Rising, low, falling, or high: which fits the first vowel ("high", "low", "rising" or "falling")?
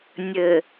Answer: low